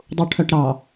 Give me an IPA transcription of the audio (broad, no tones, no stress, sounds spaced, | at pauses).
dˤ u ʈʰ œ ʈ ɾ ɑ